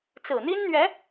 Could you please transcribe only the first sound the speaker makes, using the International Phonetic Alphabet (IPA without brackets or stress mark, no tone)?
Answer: t͡s